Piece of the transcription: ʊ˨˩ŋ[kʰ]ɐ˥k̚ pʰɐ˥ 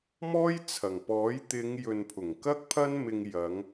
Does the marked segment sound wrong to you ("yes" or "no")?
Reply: yes